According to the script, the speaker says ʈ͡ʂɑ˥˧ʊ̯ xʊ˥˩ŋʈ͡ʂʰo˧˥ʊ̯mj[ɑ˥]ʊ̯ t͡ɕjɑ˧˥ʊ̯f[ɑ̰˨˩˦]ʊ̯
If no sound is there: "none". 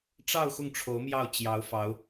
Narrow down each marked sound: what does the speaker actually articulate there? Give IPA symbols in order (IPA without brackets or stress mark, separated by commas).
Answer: ɑ˥˩, ɑ˧˥